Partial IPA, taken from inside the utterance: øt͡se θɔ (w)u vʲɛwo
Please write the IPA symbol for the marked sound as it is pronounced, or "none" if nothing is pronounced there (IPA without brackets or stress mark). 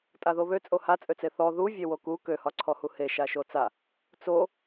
ð